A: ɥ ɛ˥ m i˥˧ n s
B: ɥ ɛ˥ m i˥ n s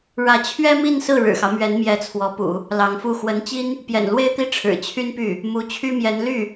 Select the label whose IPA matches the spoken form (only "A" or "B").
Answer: A